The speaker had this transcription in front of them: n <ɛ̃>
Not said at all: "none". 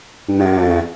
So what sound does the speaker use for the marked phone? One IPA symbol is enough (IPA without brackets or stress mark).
ɛ̃